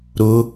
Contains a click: no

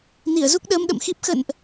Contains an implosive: yes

